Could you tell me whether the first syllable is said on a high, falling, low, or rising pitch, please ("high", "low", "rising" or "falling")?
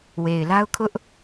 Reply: low